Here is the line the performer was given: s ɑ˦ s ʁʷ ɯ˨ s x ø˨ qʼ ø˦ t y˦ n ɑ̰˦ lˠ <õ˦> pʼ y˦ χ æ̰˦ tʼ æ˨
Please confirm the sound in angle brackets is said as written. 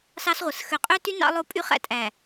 no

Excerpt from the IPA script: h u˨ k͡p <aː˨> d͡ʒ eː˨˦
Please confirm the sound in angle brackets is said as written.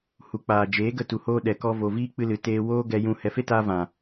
yes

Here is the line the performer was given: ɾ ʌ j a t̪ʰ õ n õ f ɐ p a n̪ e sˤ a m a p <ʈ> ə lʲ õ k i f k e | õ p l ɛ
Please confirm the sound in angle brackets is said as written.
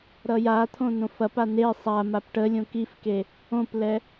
yes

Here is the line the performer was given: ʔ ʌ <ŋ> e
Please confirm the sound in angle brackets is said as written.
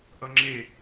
no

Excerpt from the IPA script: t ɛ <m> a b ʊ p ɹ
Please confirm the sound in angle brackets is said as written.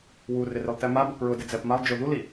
yes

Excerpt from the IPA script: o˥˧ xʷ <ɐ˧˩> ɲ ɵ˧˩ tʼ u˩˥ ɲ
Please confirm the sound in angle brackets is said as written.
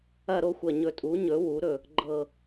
yes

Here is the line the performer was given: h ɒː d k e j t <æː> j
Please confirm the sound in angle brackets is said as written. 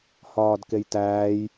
yes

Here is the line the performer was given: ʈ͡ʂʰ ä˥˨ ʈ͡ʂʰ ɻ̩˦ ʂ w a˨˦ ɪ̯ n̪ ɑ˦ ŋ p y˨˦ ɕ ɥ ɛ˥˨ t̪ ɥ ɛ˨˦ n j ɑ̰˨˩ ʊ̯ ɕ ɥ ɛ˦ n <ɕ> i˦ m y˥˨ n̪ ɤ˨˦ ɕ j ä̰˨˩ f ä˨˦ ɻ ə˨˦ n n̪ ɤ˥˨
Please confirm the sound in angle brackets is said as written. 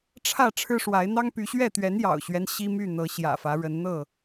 yes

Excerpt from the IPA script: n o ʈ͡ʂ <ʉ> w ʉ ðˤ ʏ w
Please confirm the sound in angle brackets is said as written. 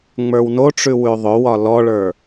yes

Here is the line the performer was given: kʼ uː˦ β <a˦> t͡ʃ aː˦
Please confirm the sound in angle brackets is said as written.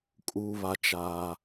yes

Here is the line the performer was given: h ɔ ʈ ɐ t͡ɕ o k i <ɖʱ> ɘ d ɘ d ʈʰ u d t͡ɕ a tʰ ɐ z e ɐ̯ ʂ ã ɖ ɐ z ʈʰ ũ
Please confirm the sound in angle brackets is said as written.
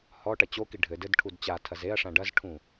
yes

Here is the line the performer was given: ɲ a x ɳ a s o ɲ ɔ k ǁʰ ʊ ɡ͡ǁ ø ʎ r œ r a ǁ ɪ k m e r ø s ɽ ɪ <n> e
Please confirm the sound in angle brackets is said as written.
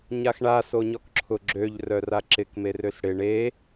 no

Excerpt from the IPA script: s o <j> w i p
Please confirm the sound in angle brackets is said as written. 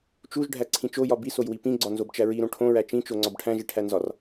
yes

